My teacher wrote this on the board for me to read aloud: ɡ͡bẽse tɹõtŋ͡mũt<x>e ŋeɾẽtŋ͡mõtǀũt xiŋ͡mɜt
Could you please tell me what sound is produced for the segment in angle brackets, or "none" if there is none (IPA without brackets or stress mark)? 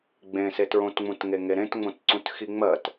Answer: ŋ